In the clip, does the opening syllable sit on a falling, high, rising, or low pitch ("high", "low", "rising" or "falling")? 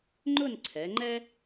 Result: falling